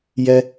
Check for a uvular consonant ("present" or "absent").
absent